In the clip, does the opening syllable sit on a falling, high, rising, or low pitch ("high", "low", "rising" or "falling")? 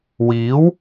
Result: rising